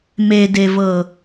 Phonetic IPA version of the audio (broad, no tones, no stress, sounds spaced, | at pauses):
m e d e v ɤ